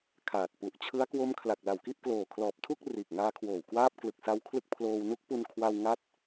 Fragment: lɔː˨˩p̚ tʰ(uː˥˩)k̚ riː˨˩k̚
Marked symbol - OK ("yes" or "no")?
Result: no